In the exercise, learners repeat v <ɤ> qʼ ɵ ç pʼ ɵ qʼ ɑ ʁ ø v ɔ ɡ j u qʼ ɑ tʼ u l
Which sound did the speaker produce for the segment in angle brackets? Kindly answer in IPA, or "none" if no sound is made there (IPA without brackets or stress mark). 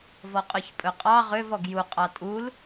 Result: ɔ